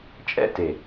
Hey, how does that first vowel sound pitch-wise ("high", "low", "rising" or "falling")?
high